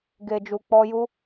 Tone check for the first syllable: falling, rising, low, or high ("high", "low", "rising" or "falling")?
low